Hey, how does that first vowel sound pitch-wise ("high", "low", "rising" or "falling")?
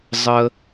high